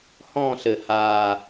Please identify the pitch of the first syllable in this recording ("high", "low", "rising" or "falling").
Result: falling